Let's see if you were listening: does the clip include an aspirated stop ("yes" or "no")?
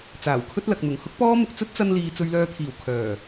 yes